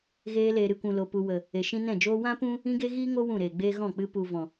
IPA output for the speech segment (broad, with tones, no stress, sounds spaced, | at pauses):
ɣ eː˧ l eː˨ ɾ ɨ˨ kʷ ũ˨ l o˨ p u˨ w ə˨ | e˨ ʃ ĩ˧ n ɛ̃˦˨ d͡ʒ oː˧ w ã˦ p ũ˦ | ĩ˦ ɡ e˦ ɣ iː˦ ŋ o˦ w ũ˦˨ ɾ eː˨ ɡ͡b eː˦ ɣ ɔ̃˦˨ k͡p ɨ˧ p u˨ v ɔ̃˨